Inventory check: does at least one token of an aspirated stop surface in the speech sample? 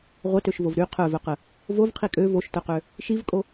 yes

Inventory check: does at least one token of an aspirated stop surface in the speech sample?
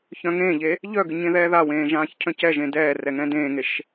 yes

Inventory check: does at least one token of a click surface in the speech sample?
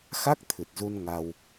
no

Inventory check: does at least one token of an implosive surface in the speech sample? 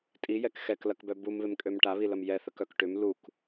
no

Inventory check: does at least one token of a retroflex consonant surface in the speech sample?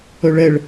yes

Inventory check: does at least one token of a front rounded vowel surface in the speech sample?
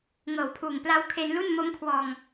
no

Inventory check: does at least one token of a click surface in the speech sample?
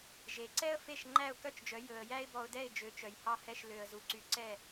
yes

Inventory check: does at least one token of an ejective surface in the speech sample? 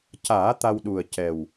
no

